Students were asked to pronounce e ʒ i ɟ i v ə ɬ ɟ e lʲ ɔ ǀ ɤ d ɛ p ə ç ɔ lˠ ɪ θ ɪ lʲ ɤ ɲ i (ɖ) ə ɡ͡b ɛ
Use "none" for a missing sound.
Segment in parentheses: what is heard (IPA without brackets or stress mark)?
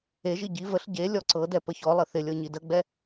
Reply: d